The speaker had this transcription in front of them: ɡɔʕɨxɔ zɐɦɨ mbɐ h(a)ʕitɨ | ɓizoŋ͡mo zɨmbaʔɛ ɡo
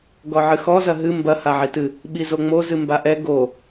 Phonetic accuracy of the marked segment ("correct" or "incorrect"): correct